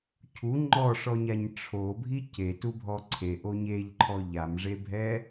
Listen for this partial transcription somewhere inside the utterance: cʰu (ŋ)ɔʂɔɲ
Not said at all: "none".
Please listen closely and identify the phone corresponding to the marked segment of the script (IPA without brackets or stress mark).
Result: ŋ͡ǃ